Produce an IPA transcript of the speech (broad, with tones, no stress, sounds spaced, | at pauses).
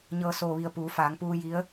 ɲ ɤː˩ s oː˩ ʋ i˩ ə̯ p uː˩˧ f aː˩˧ ŋ p uː˧ j i˧˥ ə̯